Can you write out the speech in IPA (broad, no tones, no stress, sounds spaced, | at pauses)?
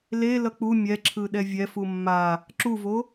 l e l ʌ k͡p u mʲ ɛ ǁʰ ɯ ɗ ɛ vʲ ɛ f u mː a | ǁ u v o